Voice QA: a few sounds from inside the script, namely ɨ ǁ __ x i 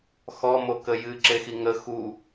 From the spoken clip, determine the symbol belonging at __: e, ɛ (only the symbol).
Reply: e